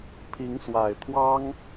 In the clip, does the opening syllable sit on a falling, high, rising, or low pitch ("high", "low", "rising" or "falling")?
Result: rising